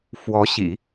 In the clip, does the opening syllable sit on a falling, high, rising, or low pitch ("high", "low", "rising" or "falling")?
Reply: rising